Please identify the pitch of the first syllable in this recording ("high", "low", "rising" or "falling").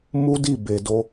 high